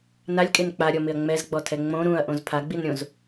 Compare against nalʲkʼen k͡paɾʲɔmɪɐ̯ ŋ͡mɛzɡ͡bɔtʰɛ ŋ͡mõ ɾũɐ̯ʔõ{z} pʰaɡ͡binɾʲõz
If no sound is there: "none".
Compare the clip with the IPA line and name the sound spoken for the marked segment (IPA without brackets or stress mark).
z